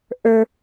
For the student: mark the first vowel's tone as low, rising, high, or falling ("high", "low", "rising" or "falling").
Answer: high